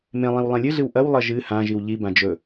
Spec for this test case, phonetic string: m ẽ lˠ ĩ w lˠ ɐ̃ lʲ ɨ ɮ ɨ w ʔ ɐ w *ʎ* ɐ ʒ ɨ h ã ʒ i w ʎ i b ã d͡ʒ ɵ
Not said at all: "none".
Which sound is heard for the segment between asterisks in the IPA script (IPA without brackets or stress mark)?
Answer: lˠ